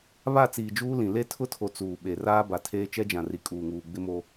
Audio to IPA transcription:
β a˦˨ t͡s iː˨ d͡ʒ uː˦ l ĩ˨ l e˦ tʰ ʊ˦ tʰ o˨ t͡s uː˨ ɓ e˨ r aː˦ b a˨ tʰ eː˦ t͡ʃ ɛ˦ d͡ʒ ã˨ r i˨ kʼ uː˨ ŋ uː˨ ɡ͡b ɪ˦ m o˦

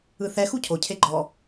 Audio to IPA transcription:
ɯ θ ɛ x u cʰ o cʰ e ɡ͡ǃ ɔ

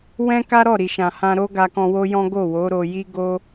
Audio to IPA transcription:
w ɛ̃˦ k a˦ ɾ ɔ˦˨ ɾ i˨ ʃ ã˨ h ã˧ ɾ o˦ ɡ a˧ k ɔ̃˧ w o˦ j ɔ̃˦ ɡ o˦˨ w o˨˦ ɾ o˧ j i˦ ɡ o˦

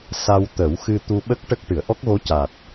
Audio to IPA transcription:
s a˧ w t̪ ə˨˩˦ w x ɨ˧ t̪ u˧ ɓ ə˦˥ k̚ ʈ ə˦˥ k̚ ʈ ɨ˨˩˨ ə̯ ʔ ɔ˦˥ k̚ ɣ o˧˥ c a˨˩ t̚

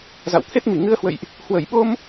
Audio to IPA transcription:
z a̰˧˨ w t̪ʰ e˦˥ t̚ m i˧˩ ŋ ɨ˧ ə̯ h w ə̰˧˨ j ʔ | h w ə˧˩ j ɓ o˧ m

